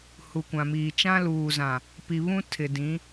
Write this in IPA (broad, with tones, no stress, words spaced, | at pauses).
hu˨kʷã˨miː˨ t͡ʃã˦luː˨zã˨ | pi˨βũ˦ tʰɪ˨dĩ˨˦